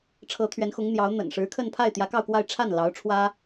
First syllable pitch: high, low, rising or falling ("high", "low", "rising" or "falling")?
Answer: rising